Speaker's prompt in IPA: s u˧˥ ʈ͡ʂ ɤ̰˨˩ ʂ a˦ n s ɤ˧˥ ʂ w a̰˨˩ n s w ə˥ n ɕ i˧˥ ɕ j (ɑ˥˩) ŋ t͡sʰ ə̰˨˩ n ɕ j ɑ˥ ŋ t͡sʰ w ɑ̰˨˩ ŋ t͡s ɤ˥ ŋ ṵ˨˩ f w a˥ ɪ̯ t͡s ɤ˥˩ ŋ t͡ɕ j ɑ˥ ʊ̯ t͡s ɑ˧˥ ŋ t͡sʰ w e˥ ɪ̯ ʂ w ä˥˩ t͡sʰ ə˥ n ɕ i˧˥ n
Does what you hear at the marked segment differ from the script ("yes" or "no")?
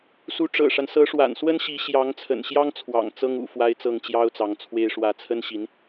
yes